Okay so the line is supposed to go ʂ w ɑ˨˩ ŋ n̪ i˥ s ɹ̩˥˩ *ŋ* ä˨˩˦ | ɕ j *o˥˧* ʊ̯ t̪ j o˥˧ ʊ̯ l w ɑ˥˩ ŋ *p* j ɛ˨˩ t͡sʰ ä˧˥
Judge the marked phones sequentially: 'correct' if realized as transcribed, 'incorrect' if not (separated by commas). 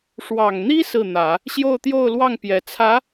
incorrect, correct, correct